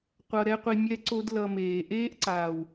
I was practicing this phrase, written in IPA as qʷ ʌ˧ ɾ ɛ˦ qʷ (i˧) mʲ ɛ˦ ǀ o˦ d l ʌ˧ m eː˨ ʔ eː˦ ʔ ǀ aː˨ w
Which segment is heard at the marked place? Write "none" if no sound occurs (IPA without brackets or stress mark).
i˧